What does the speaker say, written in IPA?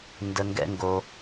n d ə˦ ŋ ɡ ɛ̰˥ ŋ ɡ o˦

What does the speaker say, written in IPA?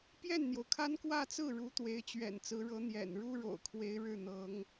p j ɛ˥˩ n n̪ j o˩ ʊ̯ kʰ a˥ n k w ä˥˧ t͡s ɹ̩˥˩ ɻ u˧˥ t̪ w e˧˥ ɪ̯ t͡ɕ ɥ ɛ̰˨˩ n t͡s ɹ̩˧˥ ɻ ɤ˧˥ n̪ j ɛ̰˨˩ n ɻ u˥ ɻ o̰˨˩ ʊ̯ kʰ w e˧˥ ɪ̯ ɻ ɻ̩˥˩ n̪ ɤ˧˥ ŋ

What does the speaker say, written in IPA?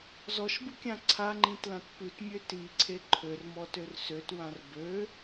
z ɔ ʃ b ɯ kʲ ã ǀʰ a ŋ͡ǃ ĩ t l ã t p ʉ t mʲ ø t i ǀʰ e ǃʰ ø r m ɔ t ø r s ø t w ã r b ø

